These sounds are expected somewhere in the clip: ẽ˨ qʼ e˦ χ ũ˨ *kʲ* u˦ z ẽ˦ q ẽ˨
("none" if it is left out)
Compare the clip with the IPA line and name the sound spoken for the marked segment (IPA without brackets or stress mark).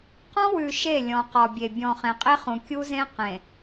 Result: kʲ